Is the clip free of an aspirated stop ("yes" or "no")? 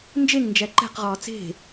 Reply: yes